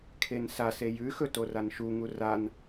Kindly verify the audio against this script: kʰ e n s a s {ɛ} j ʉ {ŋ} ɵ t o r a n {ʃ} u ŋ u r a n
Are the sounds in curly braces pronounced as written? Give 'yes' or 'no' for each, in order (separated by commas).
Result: no, no, yes